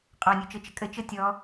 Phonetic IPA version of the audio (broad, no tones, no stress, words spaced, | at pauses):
qʼɔnʲut͡ʃɤt͡ʃə kʼət͡ʃɤ tʲɔ